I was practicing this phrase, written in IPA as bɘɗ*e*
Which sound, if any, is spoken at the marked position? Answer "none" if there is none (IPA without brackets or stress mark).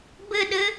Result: ɘ